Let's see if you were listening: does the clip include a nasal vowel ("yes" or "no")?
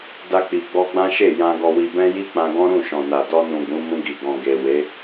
yes